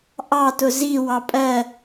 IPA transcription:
ʔɑtʊ zi wɑpʼɜ

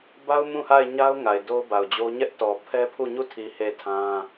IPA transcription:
ba˦ʊ̯ mũ˦˨ha˦˨ɪ̯ɲa˦ʊ̯ ŋa˨ɪ̯do˦ʊ̯ba˨ʊ̯d͡ʑo˦ ɲɛ˦ʔtɔ˨ pʰɛ˦pʰu˦˨ ɲu˦˨tʰi˨ he˦˨tʰã˦

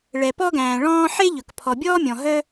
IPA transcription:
ɭɛ˩pɔ˥ɡæ̃ː˩ ɭɔ̃ː˥ ħe˥ʎɵ˩k pʰɔ˩bʲɔː˥mʲɔ̃˩ ɦœ˥

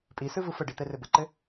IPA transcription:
pʼisɯvɯ fəɖit̪ɛrɘ bəǃɘ

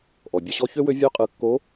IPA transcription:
ʔɔ˩bʲʌ˧ɕɔ˥ çø˥wø˧˥ vʲø˧˥qʼɯ˩˧kːo˧˥

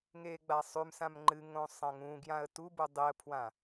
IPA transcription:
ŋeːɡ͡basˤʉmsãm ŋ͡ǃɨ ŋõsˤɐ̃ŋũɡjãə̯ tubu dˤiə̯pʰwã

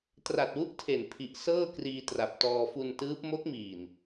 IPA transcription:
tra˨˩t̚wu˦˥ʔ tʰe˨˩npʰi˨˩ʔ sɤː˥˩ kriː˧tra˨˩p̚tɔː˧ fu˧ntɯː˦˥p̚ mo˦˥k̚miː˨˩n

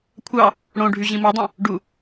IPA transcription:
kʷʰɑ | ɽõ ɖʱyʑĩmodˤẽ | ɖu

